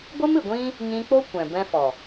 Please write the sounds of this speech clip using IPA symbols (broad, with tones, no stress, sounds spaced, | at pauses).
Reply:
ɡʷ ɨ˦ m ɨ˨ ɡʷ ĩ˦ | ɲ ĩ˧ k͡p o˦ kʷ ɛ̃˨ b ɛ̃˧ f ɔ˨